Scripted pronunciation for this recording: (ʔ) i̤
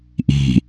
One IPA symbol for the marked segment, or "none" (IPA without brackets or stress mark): ʔ